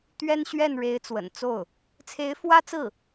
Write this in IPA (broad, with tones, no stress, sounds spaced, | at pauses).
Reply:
t̪ ɥ ɛ˥ n ɕ ɥ ɛ˥˩ n ɻ e˧˥ ɪ̯ t͡s w ə̰˨˩ n t͡s o˥˩ ʊ̯ | t͡sʰ e˧˥ ɪ̯ f w ä˥ t͡s ɹ̩˥˩